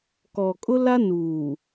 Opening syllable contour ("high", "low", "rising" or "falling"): low